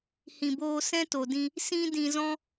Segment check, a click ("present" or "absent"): absent